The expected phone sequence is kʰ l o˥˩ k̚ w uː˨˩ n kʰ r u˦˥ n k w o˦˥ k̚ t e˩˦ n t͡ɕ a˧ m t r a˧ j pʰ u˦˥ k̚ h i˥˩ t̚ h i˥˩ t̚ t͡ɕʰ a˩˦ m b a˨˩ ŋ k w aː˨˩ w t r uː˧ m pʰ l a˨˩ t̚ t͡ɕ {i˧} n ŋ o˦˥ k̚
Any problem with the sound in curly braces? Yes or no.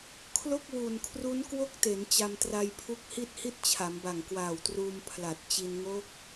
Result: no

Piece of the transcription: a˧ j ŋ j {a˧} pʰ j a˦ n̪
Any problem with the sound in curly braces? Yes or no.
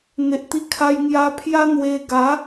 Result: no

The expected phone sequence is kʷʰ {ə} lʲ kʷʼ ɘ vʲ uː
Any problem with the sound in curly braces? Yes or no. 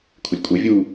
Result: no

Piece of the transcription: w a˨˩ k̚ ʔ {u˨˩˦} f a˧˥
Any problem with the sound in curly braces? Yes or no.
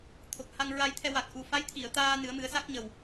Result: yes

